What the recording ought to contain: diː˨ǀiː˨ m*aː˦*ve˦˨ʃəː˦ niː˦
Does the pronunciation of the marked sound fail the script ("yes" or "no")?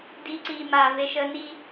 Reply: yes